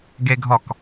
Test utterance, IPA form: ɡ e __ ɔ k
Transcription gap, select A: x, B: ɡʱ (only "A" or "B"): B